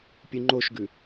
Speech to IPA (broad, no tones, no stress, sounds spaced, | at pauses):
pʲ u ŋ͡ǃ o ʃ ɡ ʉ